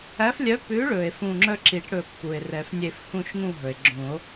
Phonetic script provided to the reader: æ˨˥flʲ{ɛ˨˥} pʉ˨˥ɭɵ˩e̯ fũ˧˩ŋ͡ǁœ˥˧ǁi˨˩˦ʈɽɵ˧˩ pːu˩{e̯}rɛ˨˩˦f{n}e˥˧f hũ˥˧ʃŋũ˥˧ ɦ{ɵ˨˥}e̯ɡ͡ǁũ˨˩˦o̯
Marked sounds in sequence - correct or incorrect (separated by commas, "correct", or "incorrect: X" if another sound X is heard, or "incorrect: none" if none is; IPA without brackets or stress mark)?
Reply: incorrect: œ˨˥, correct, incorrect: nʲ, incorrect: ɵ˩